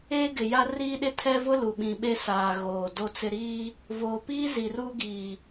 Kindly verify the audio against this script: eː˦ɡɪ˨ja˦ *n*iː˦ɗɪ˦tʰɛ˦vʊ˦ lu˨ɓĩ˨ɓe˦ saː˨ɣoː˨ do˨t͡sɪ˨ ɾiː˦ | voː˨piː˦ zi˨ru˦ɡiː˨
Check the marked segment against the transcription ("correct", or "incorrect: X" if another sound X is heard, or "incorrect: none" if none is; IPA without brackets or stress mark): incorrect: r